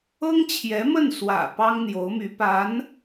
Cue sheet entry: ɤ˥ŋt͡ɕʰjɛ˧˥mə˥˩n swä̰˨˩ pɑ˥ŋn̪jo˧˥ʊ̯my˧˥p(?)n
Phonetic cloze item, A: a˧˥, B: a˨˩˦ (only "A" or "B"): A